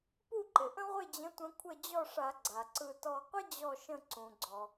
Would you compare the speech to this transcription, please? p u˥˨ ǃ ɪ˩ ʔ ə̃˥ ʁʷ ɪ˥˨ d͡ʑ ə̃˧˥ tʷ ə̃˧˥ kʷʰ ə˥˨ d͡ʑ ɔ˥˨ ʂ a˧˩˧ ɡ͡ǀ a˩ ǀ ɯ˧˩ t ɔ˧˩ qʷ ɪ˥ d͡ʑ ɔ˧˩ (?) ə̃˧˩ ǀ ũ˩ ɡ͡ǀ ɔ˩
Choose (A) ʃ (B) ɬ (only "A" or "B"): A